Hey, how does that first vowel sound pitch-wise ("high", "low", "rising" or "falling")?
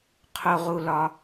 low